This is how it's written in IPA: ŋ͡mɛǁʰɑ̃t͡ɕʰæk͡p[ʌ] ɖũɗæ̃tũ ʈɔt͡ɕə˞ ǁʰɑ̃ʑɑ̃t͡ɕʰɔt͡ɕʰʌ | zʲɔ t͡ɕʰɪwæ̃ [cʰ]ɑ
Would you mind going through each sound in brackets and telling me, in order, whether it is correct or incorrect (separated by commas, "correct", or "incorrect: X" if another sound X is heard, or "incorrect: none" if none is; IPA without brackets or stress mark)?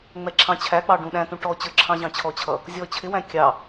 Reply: incorrect: ɑ, incorrect: kʲ